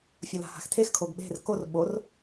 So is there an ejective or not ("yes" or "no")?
no